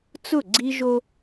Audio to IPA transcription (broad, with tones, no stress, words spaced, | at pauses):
t͡sʊ˦˨ɡ͡ǀi˦ʒo˦